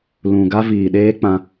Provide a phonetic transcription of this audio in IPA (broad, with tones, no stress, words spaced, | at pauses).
lũ˨ɡa˦viː˨ɗeː˦ k͡pã˧